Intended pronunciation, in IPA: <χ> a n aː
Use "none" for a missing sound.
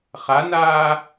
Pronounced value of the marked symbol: χ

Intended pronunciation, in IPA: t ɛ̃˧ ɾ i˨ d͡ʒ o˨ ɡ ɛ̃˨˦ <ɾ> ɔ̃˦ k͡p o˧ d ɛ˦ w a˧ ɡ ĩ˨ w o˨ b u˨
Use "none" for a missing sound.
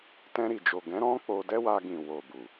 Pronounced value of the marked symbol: ɾ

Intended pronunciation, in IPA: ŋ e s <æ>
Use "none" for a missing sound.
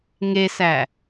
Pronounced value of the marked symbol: æ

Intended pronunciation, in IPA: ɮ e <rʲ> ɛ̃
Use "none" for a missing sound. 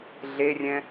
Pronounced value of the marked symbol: rʲ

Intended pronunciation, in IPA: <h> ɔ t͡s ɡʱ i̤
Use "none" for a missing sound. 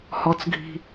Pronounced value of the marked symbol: h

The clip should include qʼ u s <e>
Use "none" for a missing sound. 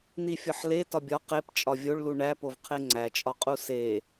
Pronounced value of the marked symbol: e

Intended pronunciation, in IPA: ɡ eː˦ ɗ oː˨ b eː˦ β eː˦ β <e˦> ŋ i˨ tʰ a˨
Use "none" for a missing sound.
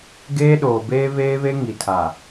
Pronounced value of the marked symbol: e˦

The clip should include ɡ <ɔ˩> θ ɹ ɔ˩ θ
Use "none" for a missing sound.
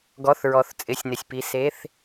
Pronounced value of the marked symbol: ɔ˩˧˩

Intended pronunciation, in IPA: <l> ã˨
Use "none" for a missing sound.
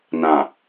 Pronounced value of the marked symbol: n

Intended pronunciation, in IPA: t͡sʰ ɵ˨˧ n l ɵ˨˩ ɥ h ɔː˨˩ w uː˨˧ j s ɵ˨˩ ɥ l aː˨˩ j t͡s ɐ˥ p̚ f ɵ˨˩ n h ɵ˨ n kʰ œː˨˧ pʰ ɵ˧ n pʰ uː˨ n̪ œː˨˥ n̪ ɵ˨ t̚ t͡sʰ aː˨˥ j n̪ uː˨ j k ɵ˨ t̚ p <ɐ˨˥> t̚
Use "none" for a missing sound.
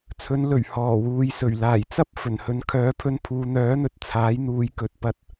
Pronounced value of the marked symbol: ɐ˧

